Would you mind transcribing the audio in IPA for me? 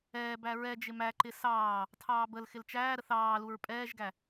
ɛː b æ ɹ ɛ d͡ʒ ɪ m æ ǃ ɪ s ɑː | tʰ ɑː b ə l x ɪ l t͡ʃ æː ɾ ə θ ɑː l u ɹ pʼ ɛː ʒ ɡ æ

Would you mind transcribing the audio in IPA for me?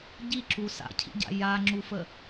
ɟ i ǁ u s a̰ cʰ ḭ ɟ a̰ j a ŋ͡ǁ u f ə

